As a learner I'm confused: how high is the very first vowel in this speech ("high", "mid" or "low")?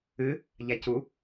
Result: high